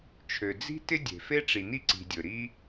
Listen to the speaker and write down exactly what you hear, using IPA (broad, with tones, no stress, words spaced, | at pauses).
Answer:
t͡ʃʰø˩d͡zi̤˥ tɪ˥dʲe̤˩fe˥ ʈ͡ʂi˩ni˥ǀi̤˩ dʲɵ˩ɾi˥